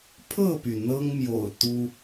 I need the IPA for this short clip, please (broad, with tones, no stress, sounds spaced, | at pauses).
pʰ ɤ˥˨ p y˩ n̪ ɤ˦ ŋ m j o̰˨˩ ʊ̯ t̪ u˦